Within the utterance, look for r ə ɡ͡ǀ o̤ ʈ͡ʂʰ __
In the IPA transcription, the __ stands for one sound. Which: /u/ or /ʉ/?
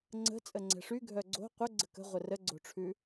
ʉ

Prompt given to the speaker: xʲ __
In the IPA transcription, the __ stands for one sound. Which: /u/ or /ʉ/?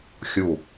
u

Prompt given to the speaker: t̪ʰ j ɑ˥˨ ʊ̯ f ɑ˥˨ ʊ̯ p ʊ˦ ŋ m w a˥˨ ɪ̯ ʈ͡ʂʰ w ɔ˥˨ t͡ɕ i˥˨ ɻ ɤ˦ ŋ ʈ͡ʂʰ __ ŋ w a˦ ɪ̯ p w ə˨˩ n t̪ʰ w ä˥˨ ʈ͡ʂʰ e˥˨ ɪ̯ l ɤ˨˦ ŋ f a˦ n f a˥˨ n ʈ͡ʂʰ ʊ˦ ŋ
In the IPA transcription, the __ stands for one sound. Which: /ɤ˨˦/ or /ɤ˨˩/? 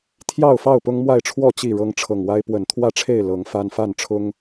ɤ˨˩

